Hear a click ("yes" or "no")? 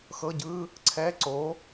yes